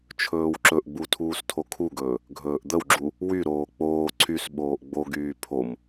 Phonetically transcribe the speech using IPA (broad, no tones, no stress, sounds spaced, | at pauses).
t͡ʃʰ ɵː w ǁ ɵ ʔ ɡ͡b u tʰ uː s tʰ o kʰ u ɡ ɵː | ɡʱ ɵː ʔ d̪ ə w ɡ͡ǁ u | w y ɾ oː k͡p oː ǀʰ y s ɓ oː ʔ ɡ͡b o ɡ yː pʰ o m